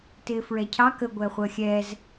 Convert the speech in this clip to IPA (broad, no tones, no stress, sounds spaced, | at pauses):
t ɪː f ɹ ɛ cʰ ɑ k ə ɡʷ ɛ χʷ əː xʲ ɛ z